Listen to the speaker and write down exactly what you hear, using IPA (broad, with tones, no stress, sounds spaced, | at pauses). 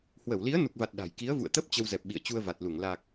h w ə˧˩ w l i˨˦ ə̯ n u˨˩ k̚ v a˨˩ t̚ ɗ a̤˨˩ j k i˨˦ ə̯ v ṵ˧˨ ə̯ t̪ ə˦˥ p̚ t͡ɕ ə˧ w z ɛ˨˩ p̚ ɓ ḭ˧˨ ə̯ t͡ɕ u˧ ə̯ v a˨˩ t̚ l u˧˩ ŋ l a˨˩ k̚